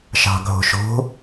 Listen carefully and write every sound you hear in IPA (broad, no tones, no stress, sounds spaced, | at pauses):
ʃ ɑ̤ ɡʱ o̤ ʃ o̤